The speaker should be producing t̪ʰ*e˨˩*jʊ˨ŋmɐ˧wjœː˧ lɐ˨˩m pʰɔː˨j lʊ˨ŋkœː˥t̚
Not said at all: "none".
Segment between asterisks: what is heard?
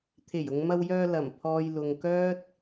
e˨˩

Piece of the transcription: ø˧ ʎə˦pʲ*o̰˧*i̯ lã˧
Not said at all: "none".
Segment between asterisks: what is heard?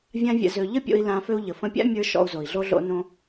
o̰˧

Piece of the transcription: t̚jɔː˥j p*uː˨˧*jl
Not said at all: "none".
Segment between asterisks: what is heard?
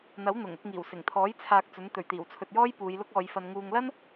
uː˨˧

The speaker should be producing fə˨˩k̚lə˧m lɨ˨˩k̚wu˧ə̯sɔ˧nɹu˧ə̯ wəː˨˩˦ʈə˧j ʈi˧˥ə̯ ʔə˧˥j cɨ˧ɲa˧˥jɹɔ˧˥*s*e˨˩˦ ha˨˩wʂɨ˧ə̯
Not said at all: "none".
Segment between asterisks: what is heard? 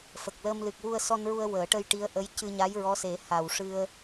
s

